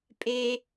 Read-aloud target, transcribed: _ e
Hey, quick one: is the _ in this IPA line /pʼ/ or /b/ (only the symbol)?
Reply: pʼ